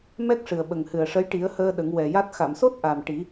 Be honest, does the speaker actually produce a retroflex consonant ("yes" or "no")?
yes